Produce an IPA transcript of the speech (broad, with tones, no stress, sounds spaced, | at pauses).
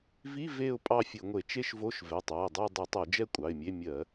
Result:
v i˧˥˧ v e˥˧ ʊ̯ pʼ ɑ˥˧ fʲ ɘ˧˩˧ ŋʷ e˧˩˧ t͡ʃ e˥˧ ʃ v o˧˥˧ ʃ v ɛ˩˧˩ tˤ ɑ˩˧˩ ə̯ dˤ ə˞˥˧ dˤ i˧˩˧ tˤ o˧˩˧ d͡ʒ ɛ˥˧ kʷʼ ɑ˩˧˩ ɪ̯ mʲ e˧˥˧ mʲ ɜ˧˩˧